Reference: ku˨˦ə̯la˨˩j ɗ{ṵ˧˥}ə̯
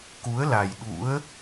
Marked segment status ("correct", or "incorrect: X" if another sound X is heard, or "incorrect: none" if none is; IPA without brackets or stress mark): correct